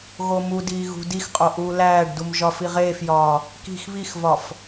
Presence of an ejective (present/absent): present